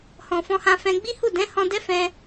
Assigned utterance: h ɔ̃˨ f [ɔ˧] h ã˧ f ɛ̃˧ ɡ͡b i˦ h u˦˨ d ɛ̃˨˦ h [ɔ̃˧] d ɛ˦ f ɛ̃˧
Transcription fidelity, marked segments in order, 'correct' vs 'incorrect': incorrect, correct

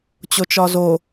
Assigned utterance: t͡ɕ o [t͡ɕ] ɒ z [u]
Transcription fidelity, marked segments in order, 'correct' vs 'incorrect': incorrect, incorrect

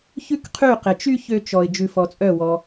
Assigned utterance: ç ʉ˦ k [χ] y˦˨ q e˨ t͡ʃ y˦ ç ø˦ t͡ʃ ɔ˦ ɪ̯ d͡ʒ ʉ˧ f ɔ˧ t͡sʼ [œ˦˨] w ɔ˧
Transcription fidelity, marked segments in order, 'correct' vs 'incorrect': incorrect, correct

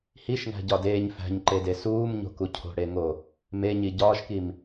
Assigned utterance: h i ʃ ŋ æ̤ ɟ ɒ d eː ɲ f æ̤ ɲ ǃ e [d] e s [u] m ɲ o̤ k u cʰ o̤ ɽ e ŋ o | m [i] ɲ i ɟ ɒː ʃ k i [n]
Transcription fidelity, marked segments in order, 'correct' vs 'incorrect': correct, incorrect, incorrect, incorrect

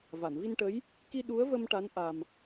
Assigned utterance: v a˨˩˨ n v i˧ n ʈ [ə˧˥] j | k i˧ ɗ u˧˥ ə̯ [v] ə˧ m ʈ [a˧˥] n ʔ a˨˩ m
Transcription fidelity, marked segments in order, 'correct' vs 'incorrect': correct, correct, correct

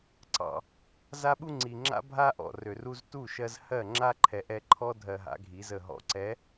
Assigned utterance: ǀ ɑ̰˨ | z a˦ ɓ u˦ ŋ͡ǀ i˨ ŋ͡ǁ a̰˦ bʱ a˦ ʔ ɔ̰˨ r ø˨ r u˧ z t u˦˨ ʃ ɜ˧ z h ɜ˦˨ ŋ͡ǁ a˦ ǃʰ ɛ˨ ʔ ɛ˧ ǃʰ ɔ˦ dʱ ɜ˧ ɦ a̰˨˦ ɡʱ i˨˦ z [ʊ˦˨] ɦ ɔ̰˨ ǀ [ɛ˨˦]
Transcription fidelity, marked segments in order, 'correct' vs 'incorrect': incorrect, correct

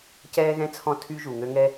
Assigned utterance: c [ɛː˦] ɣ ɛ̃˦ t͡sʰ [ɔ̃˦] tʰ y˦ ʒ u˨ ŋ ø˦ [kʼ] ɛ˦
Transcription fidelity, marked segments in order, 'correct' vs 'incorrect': correct, correct, incorrect

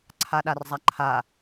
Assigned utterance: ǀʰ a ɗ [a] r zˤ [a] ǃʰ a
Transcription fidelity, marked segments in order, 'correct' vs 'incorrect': correct, correct

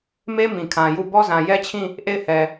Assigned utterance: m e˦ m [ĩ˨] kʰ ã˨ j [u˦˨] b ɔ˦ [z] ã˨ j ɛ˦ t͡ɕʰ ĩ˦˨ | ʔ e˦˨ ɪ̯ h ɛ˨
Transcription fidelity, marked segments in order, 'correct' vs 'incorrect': correct, correct, correct

